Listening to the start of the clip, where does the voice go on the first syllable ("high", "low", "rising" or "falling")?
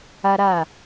high